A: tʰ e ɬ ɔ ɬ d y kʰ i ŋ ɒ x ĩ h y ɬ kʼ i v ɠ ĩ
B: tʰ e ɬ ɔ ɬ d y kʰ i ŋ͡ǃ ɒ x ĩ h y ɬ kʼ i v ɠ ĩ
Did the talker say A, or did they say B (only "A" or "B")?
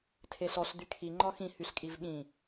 B